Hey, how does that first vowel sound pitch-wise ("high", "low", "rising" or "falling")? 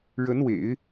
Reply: rising